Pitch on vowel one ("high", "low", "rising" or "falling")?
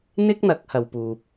high